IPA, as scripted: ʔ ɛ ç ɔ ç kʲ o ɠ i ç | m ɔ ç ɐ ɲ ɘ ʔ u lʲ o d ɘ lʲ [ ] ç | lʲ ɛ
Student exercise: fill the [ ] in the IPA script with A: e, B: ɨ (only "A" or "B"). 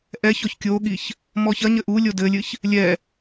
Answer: B